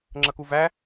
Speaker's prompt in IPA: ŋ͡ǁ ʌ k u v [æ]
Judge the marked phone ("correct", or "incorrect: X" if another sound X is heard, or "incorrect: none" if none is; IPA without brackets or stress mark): correct